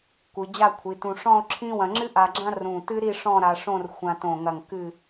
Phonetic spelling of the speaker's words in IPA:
kʷ ɨ˩˧ d͡ʑ a˥˧ kʷʰ i˩˧ t ũ˧ ʂ ɔ̃˥˧ o̯ ǁʰ ĩ˥ w ɐ̃˧ ŋ͡ǁ ɨ˥ ʔ a˧ ɡ͡ǁ ã˥ r ũ˧˩ t ɨ˥ ɾ i˥˧ ʂ ɔ̃˥˧ ɾ a˧ ʂ õ˥˧ r xʷ ã˧ t õ˧˩ ŋ ɐ˧˩ ŋ k ɨ˧˩

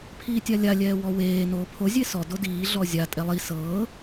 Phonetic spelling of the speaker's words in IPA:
pʰ iː tʲ a lʲ a lʲ ɛː w ɔ w eː n oː pʰ o zʲ e s ɔ d o d iː ɮ ɔ zʲ a tʼ ɛ lˠ i s ɤː

